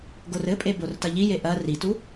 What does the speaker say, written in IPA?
ɡ o r ɘ pʼ e b o r t ɐ ʎ i j e ʔ ɐ r i t u

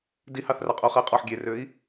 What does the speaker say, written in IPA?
d i h ɑ θ r ɑ qʼ u χ ɛ i̯ qʼ ɔ ħ ɡʲ e r ø i̯

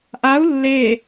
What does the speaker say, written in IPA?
ʔ a u̯ lː e

